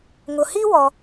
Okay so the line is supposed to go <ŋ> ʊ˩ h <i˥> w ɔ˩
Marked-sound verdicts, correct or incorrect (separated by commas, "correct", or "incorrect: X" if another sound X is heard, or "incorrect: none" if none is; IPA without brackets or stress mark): correct, correct